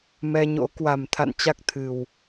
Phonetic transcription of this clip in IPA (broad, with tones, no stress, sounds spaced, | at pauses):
m ɛ˧ ɲ o̰˧˥ k w a˨˩ m t̪ʰ a̰˧˨ n t͡ɕ a˦˥ k̚ t̪ʰ ɨ˨˩ w